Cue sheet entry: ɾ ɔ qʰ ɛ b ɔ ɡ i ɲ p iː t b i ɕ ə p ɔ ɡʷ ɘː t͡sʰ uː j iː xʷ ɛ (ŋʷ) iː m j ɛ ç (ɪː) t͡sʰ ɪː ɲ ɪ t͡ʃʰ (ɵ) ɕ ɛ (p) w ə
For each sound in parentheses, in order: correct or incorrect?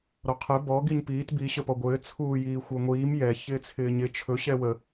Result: correct, correct, correct, incorrect

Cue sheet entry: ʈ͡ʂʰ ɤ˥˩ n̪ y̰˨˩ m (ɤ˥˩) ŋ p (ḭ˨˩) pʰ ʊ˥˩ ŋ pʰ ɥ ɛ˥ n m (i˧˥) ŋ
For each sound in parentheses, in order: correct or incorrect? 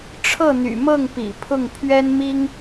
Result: correct, correct, incorrect

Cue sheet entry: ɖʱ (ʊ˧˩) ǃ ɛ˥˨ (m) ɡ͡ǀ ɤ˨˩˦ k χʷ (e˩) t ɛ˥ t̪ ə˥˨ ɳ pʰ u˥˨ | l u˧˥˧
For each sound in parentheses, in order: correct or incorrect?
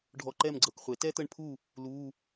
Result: incorrect, correct, incorrect

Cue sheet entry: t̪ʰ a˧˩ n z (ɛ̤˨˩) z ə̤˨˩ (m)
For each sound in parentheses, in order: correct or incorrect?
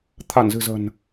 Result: incorrect, incorrect

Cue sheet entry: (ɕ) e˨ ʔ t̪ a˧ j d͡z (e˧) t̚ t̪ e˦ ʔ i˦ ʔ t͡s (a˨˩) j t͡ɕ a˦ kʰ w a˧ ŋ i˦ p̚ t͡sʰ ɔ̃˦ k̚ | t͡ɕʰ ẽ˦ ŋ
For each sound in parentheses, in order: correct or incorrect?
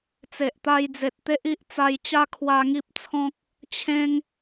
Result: incorrect, incorrect, incorrect

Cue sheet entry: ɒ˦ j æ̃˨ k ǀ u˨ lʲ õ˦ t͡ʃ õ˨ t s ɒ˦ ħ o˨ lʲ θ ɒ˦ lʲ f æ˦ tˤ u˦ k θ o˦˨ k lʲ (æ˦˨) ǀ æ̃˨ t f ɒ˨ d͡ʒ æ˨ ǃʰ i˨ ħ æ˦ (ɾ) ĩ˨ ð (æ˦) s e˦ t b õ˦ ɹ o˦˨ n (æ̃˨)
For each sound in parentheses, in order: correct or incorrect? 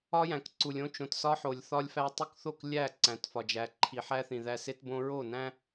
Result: correct, incorrect, correct, incorrect

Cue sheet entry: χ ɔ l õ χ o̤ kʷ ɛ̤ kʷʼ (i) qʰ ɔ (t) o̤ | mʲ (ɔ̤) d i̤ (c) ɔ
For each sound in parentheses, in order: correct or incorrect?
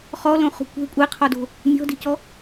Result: incorrect, incorrect, correct, correct

